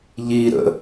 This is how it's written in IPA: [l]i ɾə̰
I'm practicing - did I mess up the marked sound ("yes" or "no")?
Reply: yes